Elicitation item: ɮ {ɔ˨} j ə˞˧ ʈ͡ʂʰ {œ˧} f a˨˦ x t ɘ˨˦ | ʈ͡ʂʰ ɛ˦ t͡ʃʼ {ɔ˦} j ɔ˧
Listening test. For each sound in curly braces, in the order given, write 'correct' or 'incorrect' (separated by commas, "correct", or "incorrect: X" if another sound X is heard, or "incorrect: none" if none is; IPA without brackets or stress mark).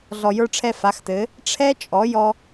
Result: correct, incorrect: ɛ˧, incorrect: ɔ˨˦